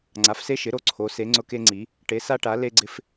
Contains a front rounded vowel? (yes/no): no